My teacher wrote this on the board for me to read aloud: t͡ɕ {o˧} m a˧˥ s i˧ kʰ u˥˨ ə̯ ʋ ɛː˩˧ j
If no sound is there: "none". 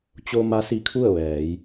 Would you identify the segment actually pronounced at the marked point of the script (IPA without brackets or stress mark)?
o˧